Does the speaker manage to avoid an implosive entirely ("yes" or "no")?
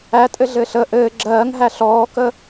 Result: yes